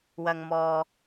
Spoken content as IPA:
w ɐ˨ ŋ m ɔː˨

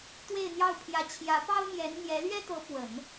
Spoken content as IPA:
t̪ w e˥˧ ɪ̯ n̪ j ɑ˥˩ ʊ̯ pʰ j ä˧˥ t͡ɕʰ j ä˧˥ p ɑ˥ ʊ̯ m j ɛ˧˥ n n̪ j ɛ˧˥ l ɥ ɛ˥ t̪ ɤ˧˥ p w ə˨˩˦ n

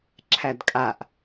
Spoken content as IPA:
ǁʰ æ d kʼ a ʔ

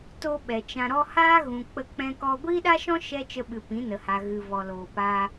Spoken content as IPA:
t o˧ ɓ ɛ˨ t͡ʃ ã˧ ɾ ɔ˦ h aː˦ ɣ ũ˨ k͡p ə˧ k͡p ɛ̃˧ k ɔ˧ ɡʷ iː˦ ɗ a˦ ʃ ɔ̃˦ ʃ ɛ˦ t͡ʃ ə˧ ɓ ɨ˨ p ĩ˨˦ n ə˨ h a˨ ɣ ɨ˨ v ɔ˨ l oː˨ p aː˧

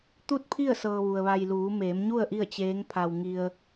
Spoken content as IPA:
t̪ u˥˨ t̚ pʰ i˥˨ ə̯ s ɤː˧ ʋ u˩ ə̯ ʋ a˧ j l uː˩˧ m eː˩˧ m ɲ u˥˨ ə̯ ʔ i˥˨ ə̯ t͡ɕ eː˧˥ ŋ pʰ a˧ w ŋ i˧ ə̯

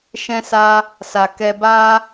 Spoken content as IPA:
ʃ ɛ̃˦ s a˦ | s a˨ k ɛ˧ b a˦

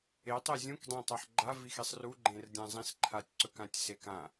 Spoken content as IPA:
e tˤ e zʲ ũ k dˤ ẽ tˤ a ħ ɡ͡ǃ a v i x i sˤ r u ɡ͡ǃ ẽ r dʲ ã zˤ ĩ s ǃʰ a tʲ ǀ ɵ k ã tʲ s e k ã

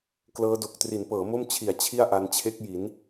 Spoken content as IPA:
k l ɤː˦˥ d o˨˩ k̚ t r i˩˦ n p ɤː˩˦ m o˥˩ m t͡ɕʰ i˨˩ a̯ t͡ɕʰ i˥˩ a̯ ʔ a˧ n t͡ɕʰ e˦˥ k̚ j i˩˦ n

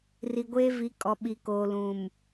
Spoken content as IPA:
r i˨ ɡʷ eː˦ v i˨˦ kʼ ɔ˨ ɓ i˨ k oː˨ l ũ˨ m

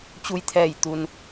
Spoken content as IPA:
t͡ɕ u˧ j t̪ʰ ɛː˧˩ j t̪ u˩ n

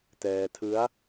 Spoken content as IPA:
t ɛː˧ tʰ ɯ˦˥ a̯

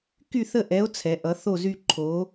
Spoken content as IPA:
k y˦˨ θ ə˦˨ ʔ ɛ˨˦ o̯ t͡sʰ ɛ˨˦ ʔ ʌ˨˦ θ o˦˨ z y˦˨ ǃʰ o˨˦

